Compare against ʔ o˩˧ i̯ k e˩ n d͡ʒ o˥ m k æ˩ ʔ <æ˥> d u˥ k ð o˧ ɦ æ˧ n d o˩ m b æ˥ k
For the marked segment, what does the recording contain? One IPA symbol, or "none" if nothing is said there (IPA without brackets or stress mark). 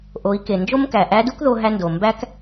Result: æ˧˥